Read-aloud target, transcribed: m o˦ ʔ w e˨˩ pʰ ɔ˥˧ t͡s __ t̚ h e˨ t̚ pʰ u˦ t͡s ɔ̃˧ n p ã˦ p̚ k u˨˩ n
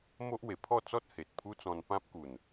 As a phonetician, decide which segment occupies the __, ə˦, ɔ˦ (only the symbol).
ɔ˦